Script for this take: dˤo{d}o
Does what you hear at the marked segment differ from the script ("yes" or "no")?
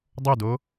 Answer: no